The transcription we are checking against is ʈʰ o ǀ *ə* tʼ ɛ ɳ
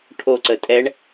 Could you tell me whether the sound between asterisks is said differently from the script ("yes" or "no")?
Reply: no